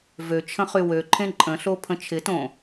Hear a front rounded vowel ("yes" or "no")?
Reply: yes